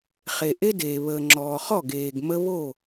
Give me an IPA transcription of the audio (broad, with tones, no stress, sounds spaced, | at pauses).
χ e˨ ʔ e˦ d eː˨ β əː˨ ŋ͡ǁ ɔː˨ χ ɔ˦˨ ɡ eː˨ ɡ m ə˦ β o˦˨